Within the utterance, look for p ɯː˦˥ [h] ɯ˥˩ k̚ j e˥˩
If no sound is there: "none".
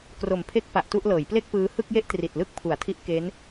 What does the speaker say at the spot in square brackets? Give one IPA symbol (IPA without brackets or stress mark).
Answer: h